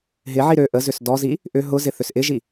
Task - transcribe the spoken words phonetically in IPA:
ɦɪʕi ɾø ʔəzʏs dɔzi | ʔʏ ɦʊzɪ θʏsʔɪʒi

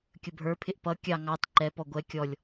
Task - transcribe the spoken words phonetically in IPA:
kʲəbʱə˞pʰɪʔ pʌ kʲɑ ŋɑt ǃɛpɔ ɡʷɛ kʲɔlʲ

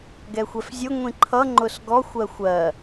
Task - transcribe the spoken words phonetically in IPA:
ɡɛxʷɛfzʲʊ ŋʷĩǃʰʌ ŋ͡ǃʊsɡɔxʷ ɜxʷɜ

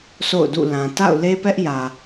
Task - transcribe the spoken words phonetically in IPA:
sʰo̰˦˨ʊ̯dṵ˦˨ lã˨ ta̰˦˨ʊ̯le˦pɛ˦ʔjä˨

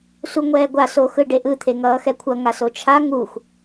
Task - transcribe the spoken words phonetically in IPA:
suŋʷɛːɡʷa soxɯɖeʔɯ t̪ʰeŋʌːxɛkʷʰʌ ŋasot͡ʃʰa ŋux

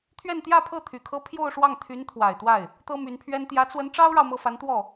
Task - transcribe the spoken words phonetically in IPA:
t̪ʰɥɛ˥˧nt̪jä˥˧pʰɤ˥˩ t̪ʰy˨˩kʰɤ˥ pʰjo˥˧ʊ̯ʂwɑ˥˩ŋt̪ʰy˧˥n t̪ʰwa˨˩ɪ̯t̪wa˥˩ɪ̯ | t̪ɤ˥my˧˥npʰɥɛ˥n t̪jä˧˥t͡swə˧˥n ʈ͡ʂɑ˥ʊ̯ɻɑ˨ʊ̯ mɤ˥˩fa˧˥nt̪wɔ˥˩

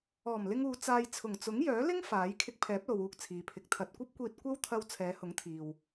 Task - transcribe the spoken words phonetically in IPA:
ɔː˨˩m lɪ˧ŋ uː˧t͡saː˧j t͡sʰʊ˨˩ŋt͡sʊ˨˥ŋjœː˨˥lɪ˥ŋ faː˨˥j kʰɪ˧k̚pʰɛː˨˥p̚lo˨w uː˧k̚t͡sʰiː˨pʰɪ˨˥k̚ t̪ʰɐ˨t̚ kʷɐ˥p̚kʷiː˧t̚ kʷɐ˥wt̪ʰɐ˧w t͡sʰɛː˨˧hʊ˨˥ŋt̪ʰiː˨w

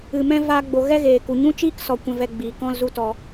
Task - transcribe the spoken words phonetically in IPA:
ɨ˨mɛ̃˦ vaː˦ɡ͡bo˧ ɣɛ˦ɣeː˨ku˨ ɲũ˦t͡ʃiː˦ksɔ˨ kʷɛ̃˧vɛ˧ɡ͡biː˨ kɔ̃˦lzu˦tɔ˧

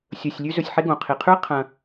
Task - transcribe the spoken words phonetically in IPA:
sʲɵː˨sʲlʲʉ˦ zɵ˨sʲħe˦ɡõ˩ qʰi˩qʰʉ˥ɐ̯qʰɐ̃˨

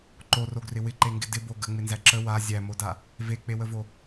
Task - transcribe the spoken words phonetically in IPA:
ǃoroɡrɪ wɪǃeŋɡɪ dɪbo ɡəŋ͡mɪnzæ ǁə wa zʲæmoda | vek͡pewəvo

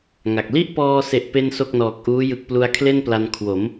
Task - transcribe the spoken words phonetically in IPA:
ŋa˨˩k̚ li˥˩ʔpɔː˧se˨˩ʔ pe˥˩nso˥˩k̚nɔː˨˩k̚ʔuː˦˥ jɯ˨˩k̚plu˧a̯kʰle˥˩n pla˧n kʰwo˩˦m

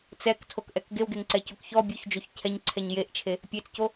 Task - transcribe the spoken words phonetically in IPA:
t͡sɛktʰokʔɛk ɡewɡeŋǀɛcok çɔ bʲoçd͡ʒoç cʰɛɲǀʰɛɲ jeʔt͡ʃʰe | pʲet͡sco

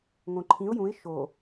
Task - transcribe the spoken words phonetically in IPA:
ŋõǃʰĩʊ̯ jũɪ̯ ʃo

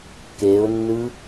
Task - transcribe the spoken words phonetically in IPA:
keʊ̯nːɯ

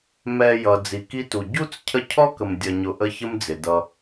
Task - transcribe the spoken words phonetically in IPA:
mɛ˨ jʌ˩d͡zi˩ki˦tu˩ ɟu˥t͡s cʰə˦cʰɔ˥kə˨m dʲʌ˨ɲʊ˨ʔə˦ çə˦md͡zɪ˩dʌ˨

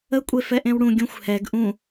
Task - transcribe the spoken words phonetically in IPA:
ə kʷʼefɛʔẽwɽũ ɡʲũxʷhɛɡ ʔũ

